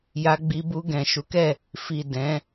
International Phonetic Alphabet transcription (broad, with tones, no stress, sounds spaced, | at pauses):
j a˧ ɡ͡b i˧ b u˧ ɡ ɛ̃˨ ʃ u˨˦ k ɛ˦˨ | f i˨ d ɛ̃˨˦